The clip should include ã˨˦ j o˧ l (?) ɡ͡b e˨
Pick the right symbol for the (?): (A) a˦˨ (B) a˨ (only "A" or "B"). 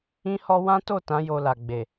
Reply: B